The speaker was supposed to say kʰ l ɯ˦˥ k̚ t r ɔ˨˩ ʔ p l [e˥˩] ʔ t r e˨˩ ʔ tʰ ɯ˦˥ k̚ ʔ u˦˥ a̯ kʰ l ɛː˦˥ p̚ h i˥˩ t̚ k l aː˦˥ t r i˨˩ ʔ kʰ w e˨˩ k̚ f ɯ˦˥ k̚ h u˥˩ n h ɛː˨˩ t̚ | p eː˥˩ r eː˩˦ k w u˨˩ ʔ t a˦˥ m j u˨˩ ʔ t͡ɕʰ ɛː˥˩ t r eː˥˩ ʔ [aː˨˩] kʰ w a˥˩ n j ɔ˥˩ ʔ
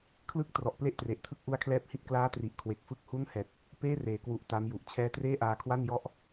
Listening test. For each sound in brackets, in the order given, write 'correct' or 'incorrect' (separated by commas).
correct, incorrect